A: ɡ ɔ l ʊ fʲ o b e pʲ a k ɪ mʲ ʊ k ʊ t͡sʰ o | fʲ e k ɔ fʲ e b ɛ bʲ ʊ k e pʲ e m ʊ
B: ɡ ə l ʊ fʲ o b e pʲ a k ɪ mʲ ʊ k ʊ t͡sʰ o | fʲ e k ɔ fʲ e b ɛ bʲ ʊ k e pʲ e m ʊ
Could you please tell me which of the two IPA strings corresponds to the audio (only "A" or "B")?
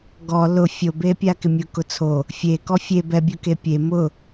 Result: A